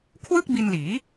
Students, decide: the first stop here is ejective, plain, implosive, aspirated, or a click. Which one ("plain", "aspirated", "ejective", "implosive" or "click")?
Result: aspirated